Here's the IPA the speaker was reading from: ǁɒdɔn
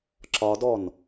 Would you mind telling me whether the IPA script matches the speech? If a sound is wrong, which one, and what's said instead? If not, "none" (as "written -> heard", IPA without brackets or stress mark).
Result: none